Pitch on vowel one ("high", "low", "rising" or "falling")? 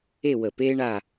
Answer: falling